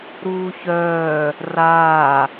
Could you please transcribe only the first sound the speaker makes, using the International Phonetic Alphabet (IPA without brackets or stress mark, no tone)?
ɾ